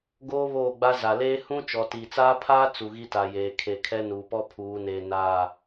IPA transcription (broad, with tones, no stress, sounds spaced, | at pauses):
ɡ oː˦ β oː˦˨ ɡ͡b a˦ z a˨ l eː˦ h ũ˦ t͡ʃ ɔ˨ t i˨ t͡s aː˦ pʰ aː˦ t͡s u˨ ɣ i˦ t a˨ j eː˨ kʰ e˨ kʰ ɛ˦ n uː˨ p ɔ˦ pʰ uː˨˦ n eː˨ n aː˦˨